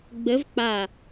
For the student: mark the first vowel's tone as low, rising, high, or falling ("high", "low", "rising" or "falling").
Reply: rising